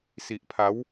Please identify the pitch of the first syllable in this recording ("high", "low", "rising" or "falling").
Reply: low